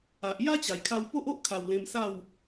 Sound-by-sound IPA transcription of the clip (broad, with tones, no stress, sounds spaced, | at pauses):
a˨ ʔ j a˦ t͡ɕ a˨˩ j kʰ a˧ w p o˦ ʔ o˦ ʔ kʰ a˨˩ w l ẽ˧ m s a˥˧ w